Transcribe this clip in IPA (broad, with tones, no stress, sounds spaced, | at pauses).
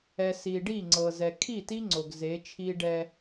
ɛ˨ s i˨ ɖ i˦˨ ŋ͡ǀ ɤ˨ z ɛ˨ kʰ i˦˨ t i˦ ŋ͡ǀ o˨ ɡ z e˨˦ t͡ʃʰ i˦ ɖ ɛ˦